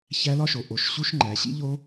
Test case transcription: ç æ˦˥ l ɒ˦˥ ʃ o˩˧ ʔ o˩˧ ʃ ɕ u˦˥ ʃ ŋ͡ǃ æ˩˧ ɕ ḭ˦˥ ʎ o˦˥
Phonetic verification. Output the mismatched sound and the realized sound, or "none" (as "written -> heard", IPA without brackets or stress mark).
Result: none